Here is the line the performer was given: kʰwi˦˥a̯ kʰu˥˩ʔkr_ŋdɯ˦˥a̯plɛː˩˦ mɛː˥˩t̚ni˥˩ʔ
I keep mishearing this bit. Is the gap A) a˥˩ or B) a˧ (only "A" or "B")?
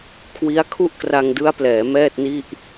B